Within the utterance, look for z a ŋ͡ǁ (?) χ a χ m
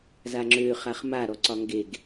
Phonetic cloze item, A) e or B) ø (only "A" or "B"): B